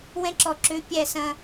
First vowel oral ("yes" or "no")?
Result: no